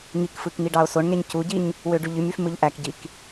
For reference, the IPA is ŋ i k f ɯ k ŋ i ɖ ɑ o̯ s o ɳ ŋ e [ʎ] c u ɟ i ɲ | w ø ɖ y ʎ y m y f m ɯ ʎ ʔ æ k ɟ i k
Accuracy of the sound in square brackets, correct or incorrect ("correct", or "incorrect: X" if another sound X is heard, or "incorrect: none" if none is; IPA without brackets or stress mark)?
incorrect: ɲ